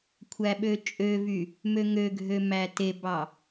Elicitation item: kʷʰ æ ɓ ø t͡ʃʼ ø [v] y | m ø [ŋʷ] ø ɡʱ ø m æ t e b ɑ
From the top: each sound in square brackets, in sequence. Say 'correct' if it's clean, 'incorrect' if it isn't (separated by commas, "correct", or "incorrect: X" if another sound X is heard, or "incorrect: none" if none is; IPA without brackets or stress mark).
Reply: correct, incorrect: ŋ